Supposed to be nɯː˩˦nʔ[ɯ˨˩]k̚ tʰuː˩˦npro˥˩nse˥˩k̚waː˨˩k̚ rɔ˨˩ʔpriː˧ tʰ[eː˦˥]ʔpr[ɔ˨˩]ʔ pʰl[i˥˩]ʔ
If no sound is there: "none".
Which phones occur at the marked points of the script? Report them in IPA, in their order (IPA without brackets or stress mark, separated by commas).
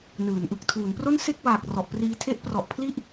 ɯ˨˩, e˦˥, ɔ˨˩, i˥˩